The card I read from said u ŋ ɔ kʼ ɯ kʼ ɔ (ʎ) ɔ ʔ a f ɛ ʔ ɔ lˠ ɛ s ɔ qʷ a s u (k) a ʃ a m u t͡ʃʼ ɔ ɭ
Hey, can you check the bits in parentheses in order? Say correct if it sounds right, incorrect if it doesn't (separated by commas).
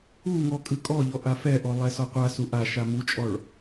correct, incorrect